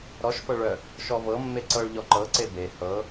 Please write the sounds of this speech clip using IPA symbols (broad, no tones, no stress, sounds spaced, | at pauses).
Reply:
ɾ ɔ ʃ f ɤ ɭ œ | ʃ ɔ v ɤ mː e ǀ ɤ ɭ ʎ ɔ ǃ ɤ ǀ e b e h ɤ